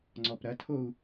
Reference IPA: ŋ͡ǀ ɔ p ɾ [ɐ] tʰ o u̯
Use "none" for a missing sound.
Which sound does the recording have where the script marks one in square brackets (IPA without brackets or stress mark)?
ɐ